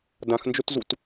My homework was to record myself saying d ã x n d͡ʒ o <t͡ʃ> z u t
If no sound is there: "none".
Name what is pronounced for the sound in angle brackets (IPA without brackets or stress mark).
t